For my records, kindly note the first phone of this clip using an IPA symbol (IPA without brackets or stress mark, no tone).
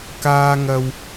k